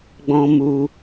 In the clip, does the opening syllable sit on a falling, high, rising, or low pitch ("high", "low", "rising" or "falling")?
high